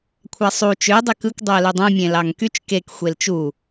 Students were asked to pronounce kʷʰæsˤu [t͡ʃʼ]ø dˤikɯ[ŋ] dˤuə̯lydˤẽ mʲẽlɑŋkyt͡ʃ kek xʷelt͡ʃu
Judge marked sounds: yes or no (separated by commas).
no, no